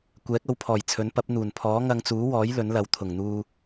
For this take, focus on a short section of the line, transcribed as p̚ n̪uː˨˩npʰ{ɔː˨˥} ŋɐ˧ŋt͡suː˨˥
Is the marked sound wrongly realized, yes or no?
no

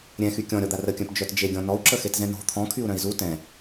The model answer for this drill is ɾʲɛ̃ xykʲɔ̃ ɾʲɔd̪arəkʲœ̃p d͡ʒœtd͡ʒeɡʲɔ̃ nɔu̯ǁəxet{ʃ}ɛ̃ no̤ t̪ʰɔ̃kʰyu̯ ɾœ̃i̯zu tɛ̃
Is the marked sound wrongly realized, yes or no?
yes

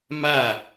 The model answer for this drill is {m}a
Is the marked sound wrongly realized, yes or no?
no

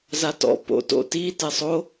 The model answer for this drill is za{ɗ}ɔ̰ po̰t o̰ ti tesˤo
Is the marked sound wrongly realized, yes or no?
yes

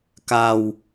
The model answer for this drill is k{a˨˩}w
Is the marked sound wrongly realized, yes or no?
yes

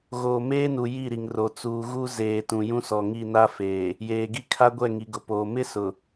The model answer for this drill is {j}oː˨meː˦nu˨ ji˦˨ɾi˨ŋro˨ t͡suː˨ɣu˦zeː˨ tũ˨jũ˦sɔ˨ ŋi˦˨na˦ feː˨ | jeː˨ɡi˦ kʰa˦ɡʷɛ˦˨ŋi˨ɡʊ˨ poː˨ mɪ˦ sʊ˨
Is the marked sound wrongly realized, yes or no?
yes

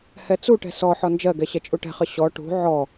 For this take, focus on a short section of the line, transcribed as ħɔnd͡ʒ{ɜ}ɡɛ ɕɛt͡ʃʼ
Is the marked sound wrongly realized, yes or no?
no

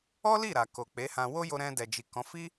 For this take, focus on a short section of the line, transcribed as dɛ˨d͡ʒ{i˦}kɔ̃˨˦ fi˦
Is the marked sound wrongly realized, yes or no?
yes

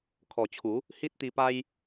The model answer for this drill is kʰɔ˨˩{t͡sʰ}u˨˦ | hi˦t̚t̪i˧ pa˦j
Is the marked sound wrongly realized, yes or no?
yes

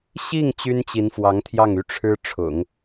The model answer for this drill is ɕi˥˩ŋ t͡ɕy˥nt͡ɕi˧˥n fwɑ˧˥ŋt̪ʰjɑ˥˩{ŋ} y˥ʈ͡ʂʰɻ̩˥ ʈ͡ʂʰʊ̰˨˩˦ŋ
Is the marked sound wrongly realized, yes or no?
no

